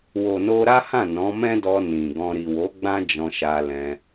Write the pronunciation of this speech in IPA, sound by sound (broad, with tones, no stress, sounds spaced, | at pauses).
w o˨ n o˧ ɾ a˦ h ã˦˨ n ɔ̃˨˦ m ɛ̃˦ d ɔ˧ n ĩ˨ ɡ ɔ̃˧ ɾ i˨ w o˨˦ ɡ͡b ã˦ d͡ʒ ɔ̃˧ ʃ a˧ l ɛ̃˧